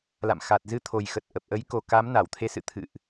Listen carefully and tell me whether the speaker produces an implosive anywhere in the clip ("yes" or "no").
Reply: no